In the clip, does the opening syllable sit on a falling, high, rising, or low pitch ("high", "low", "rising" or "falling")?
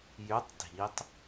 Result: rising